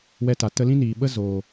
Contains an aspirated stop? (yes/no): no